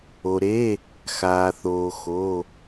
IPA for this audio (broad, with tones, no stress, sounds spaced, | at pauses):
o˩ ɾ e˩˧˩ | x aː˩ θ oː˩ x o˩˧˩